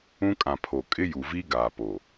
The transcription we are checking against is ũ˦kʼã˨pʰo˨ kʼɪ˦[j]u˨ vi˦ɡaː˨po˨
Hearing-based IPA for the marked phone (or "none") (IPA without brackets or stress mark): j